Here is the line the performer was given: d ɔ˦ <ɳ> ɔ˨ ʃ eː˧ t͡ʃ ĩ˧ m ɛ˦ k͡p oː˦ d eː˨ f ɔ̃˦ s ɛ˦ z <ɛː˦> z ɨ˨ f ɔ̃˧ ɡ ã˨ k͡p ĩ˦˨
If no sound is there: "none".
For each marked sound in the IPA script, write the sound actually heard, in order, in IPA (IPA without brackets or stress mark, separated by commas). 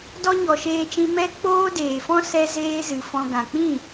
ɲ, eː˦